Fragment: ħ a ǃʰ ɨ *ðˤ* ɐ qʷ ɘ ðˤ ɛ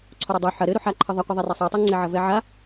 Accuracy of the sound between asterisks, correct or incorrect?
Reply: correct